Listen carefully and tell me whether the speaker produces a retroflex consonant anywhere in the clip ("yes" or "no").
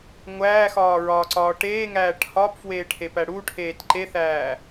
yes